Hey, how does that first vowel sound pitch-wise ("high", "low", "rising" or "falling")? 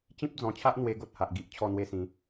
high